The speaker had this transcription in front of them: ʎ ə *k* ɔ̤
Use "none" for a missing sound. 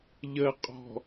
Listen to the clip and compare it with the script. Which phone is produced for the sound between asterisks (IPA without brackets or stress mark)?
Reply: qʼ